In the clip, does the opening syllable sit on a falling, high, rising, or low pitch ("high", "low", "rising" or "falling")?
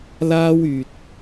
high